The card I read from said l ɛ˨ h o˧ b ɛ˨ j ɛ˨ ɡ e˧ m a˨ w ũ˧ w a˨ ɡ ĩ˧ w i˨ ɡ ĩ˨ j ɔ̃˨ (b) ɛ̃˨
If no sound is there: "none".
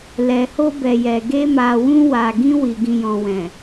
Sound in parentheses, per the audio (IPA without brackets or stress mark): w